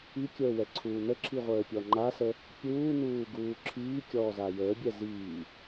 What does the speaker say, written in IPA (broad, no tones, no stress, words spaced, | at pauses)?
ikʲəːwɛ ǀʰuːn̪əǁʰiʁʷəː pʲɔŋ͡ǃasə | pʲuːn̪uː ɡuːǁʰiː kʲɔːzajəːbʲɛ ziː